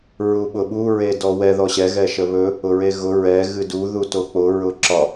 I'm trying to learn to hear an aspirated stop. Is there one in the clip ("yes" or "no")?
no